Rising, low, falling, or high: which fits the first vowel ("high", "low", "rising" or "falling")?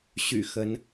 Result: low